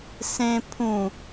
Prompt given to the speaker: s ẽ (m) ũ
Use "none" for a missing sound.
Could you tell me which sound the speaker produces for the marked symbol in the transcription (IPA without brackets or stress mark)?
pʰ